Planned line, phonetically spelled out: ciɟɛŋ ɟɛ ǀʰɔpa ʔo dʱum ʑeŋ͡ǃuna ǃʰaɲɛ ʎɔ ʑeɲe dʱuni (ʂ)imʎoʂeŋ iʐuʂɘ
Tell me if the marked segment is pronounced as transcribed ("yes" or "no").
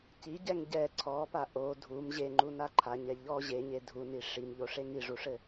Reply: yes